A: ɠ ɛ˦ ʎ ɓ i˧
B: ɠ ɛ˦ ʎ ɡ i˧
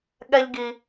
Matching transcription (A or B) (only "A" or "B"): B